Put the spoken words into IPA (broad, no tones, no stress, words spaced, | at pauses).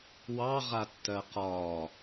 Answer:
wɑʁatːɜ qɒː